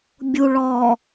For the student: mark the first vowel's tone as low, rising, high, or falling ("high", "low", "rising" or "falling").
low